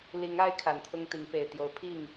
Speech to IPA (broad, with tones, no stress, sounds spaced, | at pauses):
l i˨˦ ŋ a˦ ɪ̯ kʰ a˨˩ n t̪ʰ ʊ˦ ŋ t̪ i˨˦ ŋ p e˨˩ ɪ̯ t̪ j o˨˦ ʊ̯ pʰ i˥˨ ŋ